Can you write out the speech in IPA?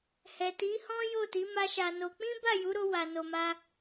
h ɛ˨ t i˨˦ h ɔ̃˦ j o˦˨ t i˨˦ m a˦ ʃ a˧ n o˧ k͡p ĩ˦ b a˦˨ j u˨˦ ɾ o˧ w a˨ n o˨ m a˧

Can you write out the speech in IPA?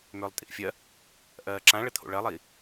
m ʏː lˠ tʼ ḭ ʔ fʲ ɜ | ʔ ɜː ǁ ã ɭ ə t̪ʰ o̰ ɭ ɜ lˠ iː

